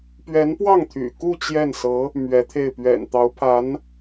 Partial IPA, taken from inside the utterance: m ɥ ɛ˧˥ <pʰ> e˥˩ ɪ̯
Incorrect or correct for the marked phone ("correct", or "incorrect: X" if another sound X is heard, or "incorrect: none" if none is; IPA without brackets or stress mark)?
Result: incorrect: t̪ʰ